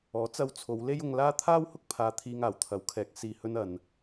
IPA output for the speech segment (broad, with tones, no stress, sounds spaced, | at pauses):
ɔː˨˥ t͡s ɐ˧ w t͡sʰ o˨˧ w l e˥ j ʊ˧ ŋ l aː˥ t̪ʰ aː˥ w h ʊ˥ k̚ pʰ aː˨ t̪ʰ iː˨ ŋ aː˨˩ w t̪ʰ ɐ˨˥ w kʰ ɛː˨˥ k̚ s iː˧ h ɵ˥ n ɐ˧ n